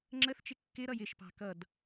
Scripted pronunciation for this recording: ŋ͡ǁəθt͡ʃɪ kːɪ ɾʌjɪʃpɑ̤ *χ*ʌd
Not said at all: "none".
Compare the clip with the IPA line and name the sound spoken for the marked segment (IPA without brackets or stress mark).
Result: k